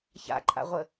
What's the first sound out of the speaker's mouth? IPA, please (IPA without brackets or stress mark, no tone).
ç